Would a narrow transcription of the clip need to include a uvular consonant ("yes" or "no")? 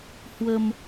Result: no